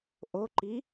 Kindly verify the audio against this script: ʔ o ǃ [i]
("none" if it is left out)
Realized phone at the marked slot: i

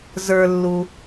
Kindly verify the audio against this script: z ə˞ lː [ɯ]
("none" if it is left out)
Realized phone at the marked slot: u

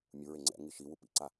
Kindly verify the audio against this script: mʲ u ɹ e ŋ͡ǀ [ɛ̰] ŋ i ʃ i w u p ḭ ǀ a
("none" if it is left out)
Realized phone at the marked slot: ɛ̰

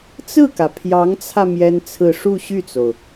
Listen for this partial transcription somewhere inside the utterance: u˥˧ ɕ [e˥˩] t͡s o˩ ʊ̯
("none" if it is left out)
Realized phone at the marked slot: y˥˩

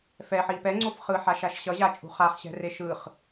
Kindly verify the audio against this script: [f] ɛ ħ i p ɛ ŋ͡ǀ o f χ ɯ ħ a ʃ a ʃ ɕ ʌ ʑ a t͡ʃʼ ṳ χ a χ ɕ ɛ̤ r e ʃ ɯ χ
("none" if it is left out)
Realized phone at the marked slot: f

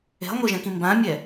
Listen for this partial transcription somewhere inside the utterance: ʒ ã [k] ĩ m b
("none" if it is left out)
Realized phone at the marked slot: k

